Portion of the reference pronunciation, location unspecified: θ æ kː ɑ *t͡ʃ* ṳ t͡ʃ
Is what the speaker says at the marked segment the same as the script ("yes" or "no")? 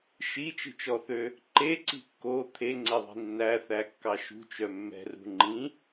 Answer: no